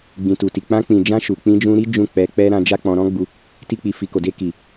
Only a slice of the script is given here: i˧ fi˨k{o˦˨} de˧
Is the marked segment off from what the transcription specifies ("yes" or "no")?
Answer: yes